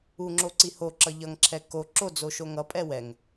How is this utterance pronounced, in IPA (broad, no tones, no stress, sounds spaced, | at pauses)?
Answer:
u ŋ͡ǁ o ǀ i h o ǁ ʌ ʎ ʌ ŋ ǁʰ ɛ k o ǁ o d͡z o ʃ o ŋ ʌ pʼ ɛ w ɛ ŋ